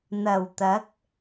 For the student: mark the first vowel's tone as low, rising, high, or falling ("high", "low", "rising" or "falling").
low